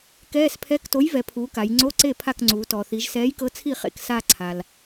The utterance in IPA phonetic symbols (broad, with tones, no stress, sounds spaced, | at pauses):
k ɛː˧˥˧ s pʰ ɛ˧˥˧ k t o˨˥ j v ɛ˩˧ pʰ uː˩˧ k a˩˧ j ŋ͡ǀ o˧˥˧ ǀ e˥˩ pʰ a˥˩ k ŋ͡ǀ uː˩˧ t ɔː˩ θ i˩˧ ʒ s ɛː˨˥ j k ɤ˨˥ t͡sʰ i˥˩ χ ḛ˥˩ k s a˥˧ ǀʰ a˩ l